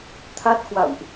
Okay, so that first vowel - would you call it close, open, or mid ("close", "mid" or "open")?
open